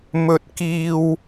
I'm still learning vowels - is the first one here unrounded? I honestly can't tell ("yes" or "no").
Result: no